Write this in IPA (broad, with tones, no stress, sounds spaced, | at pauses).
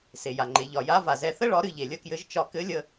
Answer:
s e˩ j a˩ ŋ͡ǃ e˩˧ ʎ ɒ˩ j a˧˥ v a˩ z ɛ˧ θ ə˥ ɭ ɒ˧˥ ɾ ɨ˧ ʎ e˩ lʲ ə˥ k j ɘ˧˥ ʒ t͡ʃ ɒ˧ k ɘ˧˥ lʲ ə˧